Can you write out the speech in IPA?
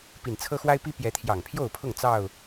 p i˨˩ n t͡sʰ ɤ˦ x w a˦ ɪ̯ p i˦ p j ɛ˨˦ t̪ʰ j ɑ˨˩ ŋ pʰ j o˥˨ ʊ̯ pʰ ʊ˥˨ ŋ t͡s ɑ˥˨ ʊ̯

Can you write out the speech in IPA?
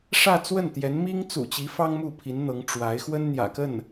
ʂ ä˥˧ t͡s w ə˥˩ n t̪ j ɛ˧˥ n m i˥ ŋ t͡s ṵ˨˩ t͡ɕ i˧˥ f ɑ˥ ŋ m u˥˩ pʰ i˧˥ n n̪ ɤ˧˥ ŋ ʈ͡ʂ w a˧˥ ɪ̯ x w ə˥ n n̪ j ä̰˨˩ k ə˥˩ n

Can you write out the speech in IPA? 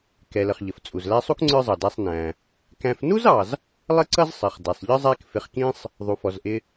k ɛ˩ l ə˩ χ ʎ ə˩ f t͡sʼ u˩ z l æ˦ sˤ u˥ k ŋ͡ǀ ə˞˦ zˤ ɑ˩ d æ˨ sˤ n æ̃˩ | k æ̃˨ f n u˥ z ɑ˩ z | lˠ ə˦ ǀ ʌ˦ z sˤ ɪ˩ χ d ɛ˩ sˤ ʎ ə˥ zˤ æ˦ k f ɪ˨ χ k ĩ˦ sˤ | ðˤ u˩ f ɔ˩ z ʔ ɪ˨

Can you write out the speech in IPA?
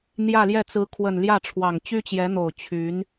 n̪ j ä˥˧ l j ɛ˥˩ t͡s ɹ̩˧˥ kʰ w ə˨˩ n l j ä˥˩ ʈ͡ʂʰ w ɑ˨˩ ŋ t͡ɕ y˥ t͡ɕ j ɛ˧˥ n̪ o˨˩ ʊ̯ t͡ɕʰ y˧˥ n

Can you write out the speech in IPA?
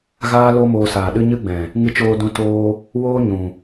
ɣ aː˦ l o˦ m oː˧ s aː˨ ɗ ɨ˦ ɲ ɨ˦ ɡ͡b ɛ̃˨ | ŋ ɨ˧ t͡ʃ oː˧ d ũ˧ t oː˦ | w oː˦ ɲ ũ˨

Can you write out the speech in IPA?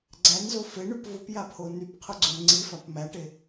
ɡ͡ǀ æ n z o f e ɳ y p v ʊ p j a pʰ o n y p qʰ ʊ ɡ͡ǀ o n ŋ͡ǀ i f a p m æ ʈ e

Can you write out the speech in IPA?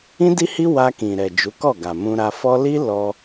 ĩ˦ d i˦ h i˦ w a˧ k ĩ˨ ɾ ɛ˨ d͡ʒ u˨˦ k ɔ˦˨ ɡ a˨ m ũ˧ ɾ a˧ f ɔ˦ l i˦ l ɔ˧

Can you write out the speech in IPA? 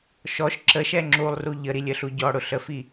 ʃ ɔ ʃ ǁ ə ʃ ɛ ŋ͡ǁ u lˠ r u ʎ ə ɾ i lʲ ə ɬ u ɟ ɔ ɽ ʊ ɬ ə f i

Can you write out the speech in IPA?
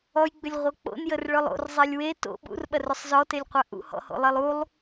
ɔ j ɡ͡b ʏ lʲ ʁʷ œ k͡p o̰ n j ə r ɭ œ lˠ o̰ r zˤ e lʲ w e t o̰ ɓ ṵ r ɓ ɐ r ʏ sˤ z ɔ t e lʲ qʷ a ʔ ṵ h ɔ̰ h o̰ lˠ e lˠ u lˠ

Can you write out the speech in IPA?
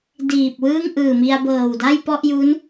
d iː˨˩ p̚ w ɯː˥˩ ŋ ʔ ɯː˨˩ m i˧ a̯ b ɤː˨˩ w d a˥˩ j p ɔ˥˩ ʔ j u˦˥ n

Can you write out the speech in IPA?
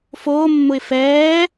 f oː mː ʊ ɪ̯ f ɛː

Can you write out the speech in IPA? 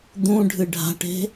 d̪ ũ ɖʱ ɨ ɖʱ a̤ ʈ e̤

